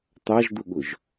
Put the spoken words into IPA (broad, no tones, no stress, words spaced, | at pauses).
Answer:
t̪ɑʒd̪ʊɠʊʒ